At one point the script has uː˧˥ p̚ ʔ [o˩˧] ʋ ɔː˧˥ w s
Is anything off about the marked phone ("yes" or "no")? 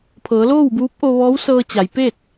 yes